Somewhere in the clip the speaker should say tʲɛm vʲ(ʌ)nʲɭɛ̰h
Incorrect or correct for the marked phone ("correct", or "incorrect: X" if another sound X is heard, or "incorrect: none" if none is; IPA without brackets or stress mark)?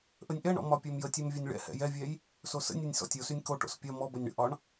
correct